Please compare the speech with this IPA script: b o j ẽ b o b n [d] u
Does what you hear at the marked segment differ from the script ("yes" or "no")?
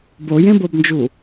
yes